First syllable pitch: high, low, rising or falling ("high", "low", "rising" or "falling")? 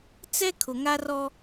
high